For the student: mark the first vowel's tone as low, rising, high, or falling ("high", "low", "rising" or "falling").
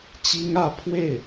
high